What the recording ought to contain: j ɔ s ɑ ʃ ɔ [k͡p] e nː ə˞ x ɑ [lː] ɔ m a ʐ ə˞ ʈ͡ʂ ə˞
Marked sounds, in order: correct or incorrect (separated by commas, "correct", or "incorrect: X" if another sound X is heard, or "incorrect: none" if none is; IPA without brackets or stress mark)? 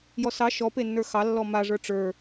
incorrect: p, correct